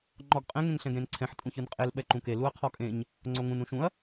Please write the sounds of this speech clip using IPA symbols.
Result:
ŋ͡ǃ ɔ ɡ qʼ ɛ̃ ŋ ẽ ŋ ɬ ɛ̃ ɡ ɾ ẽ n ǀʰ ɛ̃ ħ tʼ ũ ç ɯ n qʼ e l ɓ ɛ ǃ ũ k e l u ɐ̯ qʰ ɔ kʼ ẽ ɲ | ŋ͡ǀ o ŋ ũ n ũ ʃ ũ ɐ̯

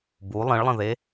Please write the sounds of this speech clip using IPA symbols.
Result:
b u lˠ ə̃ ɭ lˠ ə̃ ð e

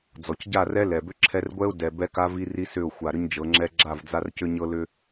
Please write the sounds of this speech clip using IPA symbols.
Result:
d͡z ɔ˨ c ɟ a˦˨ r ɛ˦ l ɛ˨ b ʏ˦ ǁʰ ɛ˦ r ɡʷ ɛ˦ ʊ̯ d ɛ˨ b ɛ˦ k a˦ v i˦ r i˦ s ʏ˦˨ ʊ̯ xʷ a˨ ɾ ʏ˦ ɲ d͡ʒ ɤ˨˦ ŋ͡ǁ ɛ˦ ɡ͡ǁ a˦˨ v d͡z a˦ r c ʏ˦ ɲ ɤ˦ l ʏ˦

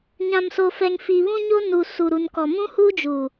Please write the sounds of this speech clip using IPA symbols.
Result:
ɲ ã˨ m s o˨ f ɛ˨ ŋ f iː˨ β ũ˦ ɲ o˦ n u˨ s u˨ ɾ u˨ n k ɔ˨ m ũ˦ h uː˦ d͡ʒ u˨

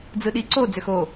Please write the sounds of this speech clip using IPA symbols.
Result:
d͡z ɯ ɗ i ǀ o d͡z ø x o

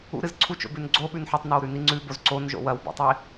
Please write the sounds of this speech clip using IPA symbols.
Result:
ṵ ɾ ɨ z ǀʰ u t͡ʃ o̰ b ʉ n ɡ͡ǀ o ɓ ʉ n ħ ɨ tˤ n a w ɾ ʉ n i ŋ͡ǀ ʉ b o z ǀ o n ʒ o̰ w ɐ w b o̰ tˤ i

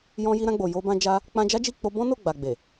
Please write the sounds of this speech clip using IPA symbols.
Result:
j ɔ̃˧ j i˧ ɾ ã˧ ɡ͡b o˨ j o˧ b ã˧ d͡ʒ a˦ | k͡p ã˧ d͡ʒ a˦ d͡ʒ i˦˨ k͡p o˧ b ɔ̃˦ n o˦˨ ɡ͡b a˨ ɡ͡b e˨

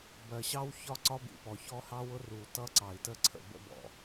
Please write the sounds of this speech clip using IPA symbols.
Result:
b ɜ˨ ɕ ɑ˦ w ç ɒ˦ ǀ ɒ˦ b ḭ˨ p ɔ˨ ç ɔ˦ h ɑ˦ w ʊ˦ r u˨ t ʌ˦ ǀ ɑ˨ i̯ t ə˦ ǀʰ ə̰˨ b ə̰˦ b ɔ̰˨

